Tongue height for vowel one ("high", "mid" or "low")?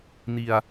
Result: high